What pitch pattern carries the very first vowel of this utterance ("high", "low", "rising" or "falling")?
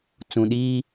low